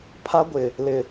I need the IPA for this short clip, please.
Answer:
pʰa˦ɡʷɪ˨ | lɪ˨

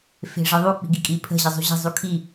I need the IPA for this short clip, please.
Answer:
fe̤ʐəðˤu k͡pi̤ɡikʼi pʰə̤ ʑəzˤṳʑə̤ zˤukʰi

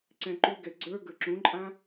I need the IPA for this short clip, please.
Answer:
ǀɛ̃ǃuɡɛ ɡ͡ǀə˞ ɡə˞ǁũǃʼã

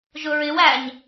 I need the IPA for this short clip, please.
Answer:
ʒʊɹɪw æɲ

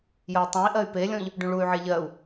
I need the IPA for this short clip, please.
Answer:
jəy̯tˤũi̯ ʔɜy̯pelʲɔ̃ʎ | ɖũɭuy̯ʕe ʎɜu̯

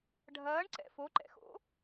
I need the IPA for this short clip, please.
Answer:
ɖʱɐːɳǀɛ̰ foǃɛ̰xo̰

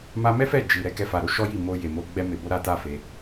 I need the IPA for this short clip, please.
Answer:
ma˧mɛ˦ fɛ˦˨d͡ʒi˨ ɾɛ˧kɛ˧fa˨ɾo˨˦ ʃɔ˦ji˦˨mo˧ je˨ mo˧ɡ͡bɛ˦ me˧bo˦ɾa˦ta˦ fe˧

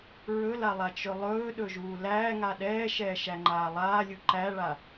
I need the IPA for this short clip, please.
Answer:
ɹɵlalˠat͡ʃɵ lˠɵːɗɵʒuː læːŋa ɗɛːʃɛːʃæŋ͡ǃaː lˠaːlʲu ǃæɭa

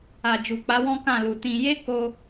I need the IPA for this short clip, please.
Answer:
a˨d͡ʒu˨k͡pa˨˦ wɔ̃˦kã˦˨lu˨ tĩ˧ je˦ko˧

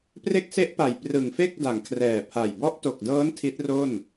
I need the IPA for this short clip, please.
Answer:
pre˦˥k̚se˦˥ʔpa˨˩j prɯ˨˩ŋfe˥˩k̚da˩˦ŋ kʰrɛː˨˩pʰa˨˩j bɔ˦˥ʔto˨˩k̚dɤː˦˥n tʰi˦˥t̚ro˥˩n

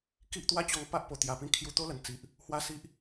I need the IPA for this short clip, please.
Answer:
ki˦ʔt̪wa˦t͡ɕɔ˧ŋ pa˦ʔpo˨˩ t̪ja˨˩pĩ˧ kʰju˧t̪o˦lə˨˩n t͡si˨ʔ | hwa˦si˦ʔ

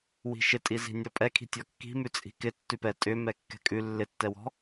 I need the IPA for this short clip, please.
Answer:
wi̤ʃɪtʼizi̤ nʲɔpʼɛkʰi̤ tʲɔkːi̤mʉ t͡sʼi̤kɪ tːʉpɛ tʼʏ mɛkːɛ̤kʼʉ lːɪtːɛwɔ̤

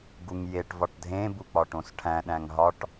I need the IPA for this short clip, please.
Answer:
ɡuŋjeʈ vɒʈdʱẽbuk͡pɒ ʈõsʈʰæ̃ ɗæ̃ŋɦɒʈ

